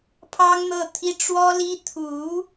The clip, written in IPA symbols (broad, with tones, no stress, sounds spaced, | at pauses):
pʰ ɑ˥ ŋ n̪ ɤ˥˩ t̪ʰ i˥ ʈ͡ʂ w ɔ˥ l i˥ t̪ʰ u˧˥